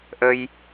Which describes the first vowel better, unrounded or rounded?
unrounded